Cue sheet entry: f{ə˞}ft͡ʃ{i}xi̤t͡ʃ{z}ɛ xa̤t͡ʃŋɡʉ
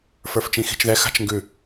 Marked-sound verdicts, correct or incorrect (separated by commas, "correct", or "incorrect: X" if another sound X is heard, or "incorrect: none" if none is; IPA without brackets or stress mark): correct, incorrect: ĩ, incorrect: ð